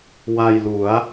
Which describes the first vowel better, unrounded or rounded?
unrounded